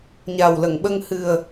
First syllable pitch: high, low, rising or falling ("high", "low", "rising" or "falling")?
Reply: low